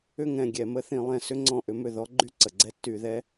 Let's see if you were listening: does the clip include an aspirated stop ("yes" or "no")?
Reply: no